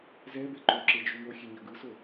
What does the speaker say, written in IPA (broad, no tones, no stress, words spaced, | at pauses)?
zɛbe ǃoǁed͡ʒu ŋoxʲeɲʌ ɡɯso